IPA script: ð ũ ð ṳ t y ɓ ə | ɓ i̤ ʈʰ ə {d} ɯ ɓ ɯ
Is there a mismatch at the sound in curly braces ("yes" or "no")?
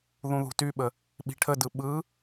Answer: no